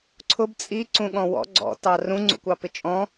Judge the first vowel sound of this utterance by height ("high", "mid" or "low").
high